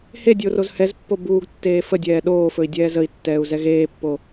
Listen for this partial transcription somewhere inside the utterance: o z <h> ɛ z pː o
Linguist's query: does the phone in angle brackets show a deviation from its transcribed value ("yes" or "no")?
no